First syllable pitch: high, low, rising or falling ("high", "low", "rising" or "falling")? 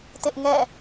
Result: high